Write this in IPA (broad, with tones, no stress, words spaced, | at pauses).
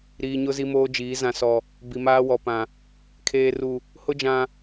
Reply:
ɾiː˨ɲʊ˦ zi˦moː˦d͡ʒiː˨˦ zã˨sɔ˨ | bi˨maː˦wɔ˨pã˨ | kʰeː˨ru˨ | hʊ˦d͡ʒã˨